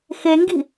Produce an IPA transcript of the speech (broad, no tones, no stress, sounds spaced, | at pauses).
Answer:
x e ŋ ɡ i̤